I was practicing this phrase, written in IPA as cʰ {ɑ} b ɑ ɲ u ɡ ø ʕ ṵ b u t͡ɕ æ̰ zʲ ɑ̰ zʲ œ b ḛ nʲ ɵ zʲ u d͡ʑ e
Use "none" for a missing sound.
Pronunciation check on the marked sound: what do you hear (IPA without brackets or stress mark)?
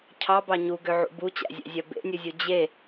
ɑ